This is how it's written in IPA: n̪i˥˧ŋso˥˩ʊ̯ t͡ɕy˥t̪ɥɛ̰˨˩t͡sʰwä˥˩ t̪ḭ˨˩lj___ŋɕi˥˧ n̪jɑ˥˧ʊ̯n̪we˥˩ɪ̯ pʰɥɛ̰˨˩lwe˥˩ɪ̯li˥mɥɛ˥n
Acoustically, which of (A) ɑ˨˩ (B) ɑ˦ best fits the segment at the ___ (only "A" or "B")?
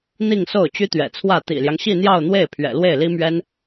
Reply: B